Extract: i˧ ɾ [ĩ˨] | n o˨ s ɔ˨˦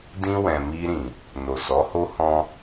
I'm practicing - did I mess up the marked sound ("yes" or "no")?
no